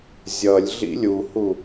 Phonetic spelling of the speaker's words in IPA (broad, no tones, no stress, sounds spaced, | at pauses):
zʲ ʌ lʲ ɮ ḭ lʲ u h u